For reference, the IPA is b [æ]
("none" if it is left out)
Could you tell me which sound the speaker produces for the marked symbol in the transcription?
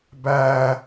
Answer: æ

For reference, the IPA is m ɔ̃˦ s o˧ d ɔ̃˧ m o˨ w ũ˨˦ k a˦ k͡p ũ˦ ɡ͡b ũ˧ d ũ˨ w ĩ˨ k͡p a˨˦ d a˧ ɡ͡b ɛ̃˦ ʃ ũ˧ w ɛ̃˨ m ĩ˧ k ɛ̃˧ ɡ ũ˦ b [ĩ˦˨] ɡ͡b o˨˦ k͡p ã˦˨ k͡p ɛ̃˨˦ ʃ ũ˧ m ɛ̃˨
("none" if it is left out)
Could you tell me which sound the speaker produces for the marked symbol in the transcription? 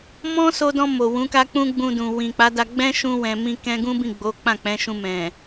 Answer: ĩ˦˨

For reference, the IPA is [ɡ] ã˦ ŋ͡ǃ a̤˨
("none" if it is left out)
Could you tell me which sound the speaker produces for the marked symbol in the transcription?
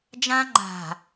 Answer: d͡ʒ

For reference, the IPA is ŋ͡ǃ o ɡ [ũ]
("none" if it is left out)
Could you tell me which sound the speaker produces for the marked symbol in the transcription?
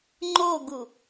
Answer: u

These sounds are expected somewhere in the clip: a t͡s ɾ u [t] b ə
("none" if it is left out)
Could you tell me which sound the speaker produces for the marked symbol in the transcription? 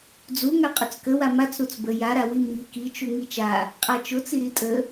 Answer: t͡s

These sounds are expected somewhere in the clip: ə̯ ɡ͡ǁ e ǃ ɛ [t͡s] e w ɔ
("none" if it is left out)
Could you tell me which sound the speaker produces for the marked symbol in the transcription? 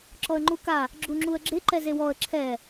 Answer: z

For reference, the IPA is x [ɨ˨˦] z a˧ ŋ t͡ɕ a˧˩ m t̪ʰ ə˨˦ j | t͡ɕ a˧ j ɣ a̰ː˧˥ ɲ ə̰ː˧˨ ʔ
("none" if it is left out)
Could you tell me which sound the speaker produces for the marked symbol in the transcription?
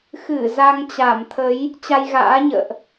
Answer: ɨ˧˩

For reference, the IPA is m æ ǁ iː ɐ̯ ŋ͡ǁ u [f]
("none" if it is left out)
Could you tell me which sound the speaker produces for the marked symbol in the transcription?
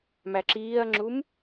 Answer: m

